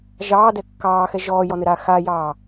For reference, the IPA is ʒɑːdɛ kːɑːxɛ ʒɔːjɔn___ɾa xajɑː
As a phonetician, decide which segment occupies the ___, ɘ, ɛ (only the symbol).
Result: ɘ